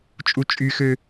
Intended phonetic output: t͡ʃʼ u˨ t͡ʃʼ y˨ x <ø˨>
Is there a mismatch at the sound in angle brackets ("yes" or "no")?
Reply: no